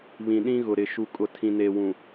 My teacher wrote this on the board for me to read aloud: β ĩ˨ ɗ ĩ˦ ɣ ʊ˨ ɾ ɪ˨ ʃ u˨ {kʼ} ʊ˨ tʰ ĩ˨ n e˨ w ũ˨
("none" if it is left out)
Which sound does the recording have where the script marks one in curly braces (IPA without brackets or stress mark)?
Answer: kʼ